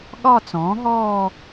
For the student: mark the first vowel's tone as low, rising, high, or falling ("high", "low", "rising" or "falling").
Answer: falling